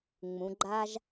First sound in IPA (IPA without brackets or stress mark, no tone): ŋ͡m